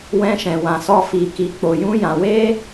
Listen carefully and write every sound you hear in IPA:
w ɛ̃˧ ʃ ɛ̃˨ w ã˨ s ɔ˧ f i˨ k i˨ k͡p o˨ j ũ˧ j ã˨ w e˧

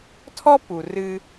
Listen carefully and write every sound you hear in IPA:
tʰ ɔ˥ p u˩ r ɨ˧

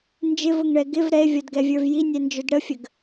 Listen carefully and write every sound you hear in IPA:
n d͡ʒ ɪ v ʊ ŋ ɳ ɛ ɡ ɪ v ɾ ɛ e̯ vʲ ɔ d ɡ ɛ vʲ ə˞ v j i nʲ ɛ n d͡ʒ ʊ d ɽ ə fʲ ə ɡ

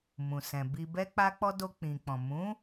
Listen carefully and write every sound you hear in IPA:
m ũ˨ s ɛ̃˨ b i˧ b ɛ˦ k͡p a˦ k͡p ɔ˦ d o˧ k͡p ĩ˨ k͡p ɔ̃˨ m ũ˨˦

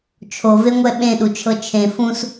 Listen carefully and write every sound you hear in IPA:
t͡ʃʰ o v e ŋʷ ɛ ɓ ẽ ɗ u t͡ʃʰ ɤ t͡ʃʰ ẽ f ũ s

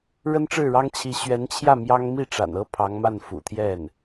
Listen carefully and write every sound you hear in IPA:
ɻ ə˥ n ʈ͡ʂ ɻ̩˥˩ ɻ ɑ˥ ŋ t͡ɕʰ i˧˥ ɕ ɥ ɛ˧˥ n t͡ɕʰ j ä˥˩ m j ɑ˥ ŋ m i˥˩ ʈ͡ʂ a̰˨˩ n ɤ˥ pʰ ɑ˧˥ ŋ m a˥˩ n f ṵ˨˩ t̪ʰ j ɛ˥˩ n

